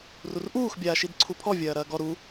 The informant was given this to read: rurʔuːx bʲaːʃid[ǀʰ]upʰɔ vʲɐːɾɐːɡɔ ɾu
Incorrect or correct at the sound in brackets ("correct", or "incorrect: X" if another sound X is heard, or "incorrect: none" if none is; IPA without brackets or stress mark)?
correct